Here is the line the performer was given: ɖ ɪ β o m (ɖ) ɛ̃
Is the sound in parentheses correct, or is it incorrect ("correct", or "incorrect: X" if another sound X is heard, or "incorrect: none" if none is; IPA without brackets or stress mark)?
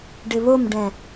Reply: correct